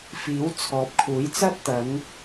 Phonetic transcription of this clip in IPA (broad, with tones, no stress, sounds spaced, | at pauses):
f iː˨˥ w t͡sʰ ɔː˨˥ p̚ kʰ uː˨˥ j t͡s ɐ˥ t̚ t̪ ɐ˨˥ ŋ